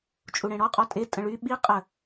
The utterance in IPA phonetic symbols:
t͡ʃʼ u ɽ ẽ ɽ ɔ qʼ ɔ tʼ e tʼ ə̃ ɭ y ɓ i qʼ ə

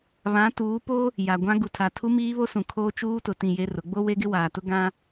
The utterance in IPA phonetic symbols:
β ã˨˦ t uː˨˦ p o˦ | j a˨ ɡʷ ã˦ ɡ u˨ tʰ a˨ tʰ u˦ m iː˦ β o˦ s ũ˨ kʰ oː˦ t͡ʃ uː˦ t ʊ˨ t ĩ˦˨ j e˦ r ʊ˨˦ ɡ͡b o˦ w e˦ ɡ ɪ˦ w aː˨ t ʊ˦ ɡ ã˦

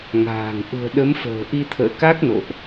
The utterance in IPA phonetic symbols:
ŋ a̤ː˨˩ ŋ ʔ ṳ˨˩ ə̯ ɗ ə˨˦ m f ə̤ː˨˩ ʔ i˧ t̪ʰ ə̰ː˧˨ k a˦˥ k̚ n o̰˧˨ ʔ

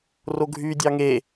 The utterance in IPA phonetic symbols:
r o ɡʱ y dʲ ɑ ŋ e

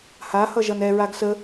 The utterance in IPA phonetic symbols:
h a h ʌ ʒ ʌ n ɛ ɹ a ɡ s ə

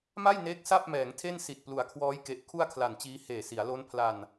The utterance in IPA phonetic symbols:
m a˥˩ j n eː˦˥ k̚ s a˥˩ p̚ m ɛː˩˦ ŋ tʰ e˥˩ n s i˨˩ t̚ p l u˩˦ a̯ kʰ w ɔː˦˥ j k e˨˩ ʔ kʰ u˥˩ a̯ kʰ l a˨˩ n t͡ɕ iː˦˥ h eː˨˩ s i˩˦ a̯ l o˦˥ n pʰ l a˧ n

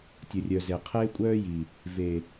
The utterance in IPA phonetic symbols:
tʲ ə˨ rʲ œ˨ z e˨ qʰ eː˦ kʷʼ œː˦ j i˨ | v e˨

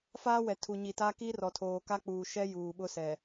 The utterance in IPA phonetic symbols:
f aː˦ w ɛ˨ tʰ u˨ ɲ i˨ t a˦ k i˦ r ɔ˨ tʰ oː˨ k a˦ k͡p uː˨ ʃ ɛ˦ j uː˨ ɓ ʊ˦ s ɛ˨

